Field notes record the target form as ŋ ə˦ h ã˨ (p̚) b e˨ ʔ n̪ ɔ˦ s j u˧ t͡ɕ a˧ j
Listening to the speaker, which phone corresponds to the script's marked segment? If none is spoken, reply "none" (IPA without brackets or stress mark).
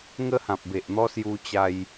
p̚